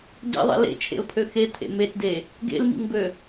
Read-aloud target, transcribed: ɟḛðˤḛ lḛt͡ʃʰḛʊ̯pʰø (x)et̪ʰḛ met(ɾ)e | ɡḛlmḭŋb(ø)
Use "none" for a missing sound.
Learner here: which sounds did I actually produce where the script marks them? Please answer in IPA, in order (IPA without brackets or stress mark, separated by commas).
x, d, ø